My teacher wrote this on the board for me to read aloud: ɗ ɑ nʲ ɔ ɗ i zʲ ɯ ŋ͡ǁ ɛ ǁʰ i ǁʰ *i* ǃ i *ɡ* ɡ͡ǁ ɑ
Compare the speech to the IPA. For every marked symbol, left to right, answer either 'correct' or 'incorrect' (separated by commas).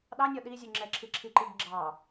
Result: correct, correct